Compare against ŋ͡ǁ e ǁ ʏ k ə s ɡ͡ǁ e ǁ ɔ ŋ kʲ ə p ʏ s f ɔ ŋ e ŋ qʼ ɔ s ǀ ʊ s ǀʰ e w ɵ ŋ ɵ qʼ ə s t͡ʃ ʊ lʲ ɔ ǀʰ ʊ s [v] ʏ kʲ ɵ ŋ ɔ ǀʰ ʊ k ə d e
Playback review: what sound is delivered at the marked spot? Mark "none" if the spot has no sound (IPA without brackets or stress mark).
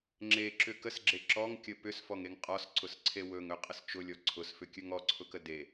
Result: f